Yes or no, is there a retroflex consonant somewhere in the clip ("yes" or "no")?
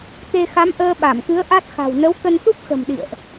no